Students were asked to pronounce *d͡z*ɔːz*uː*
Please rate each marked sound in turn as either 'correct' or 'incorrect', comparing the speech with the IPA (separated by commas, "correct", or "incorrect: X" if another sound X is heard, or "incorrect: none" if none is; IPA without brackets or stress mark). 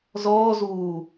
incorrect: z, correct